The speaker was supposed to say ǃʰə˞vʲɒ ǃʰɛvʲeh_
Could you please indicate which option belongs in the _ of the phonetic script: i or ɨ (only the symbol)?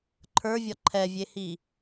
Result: i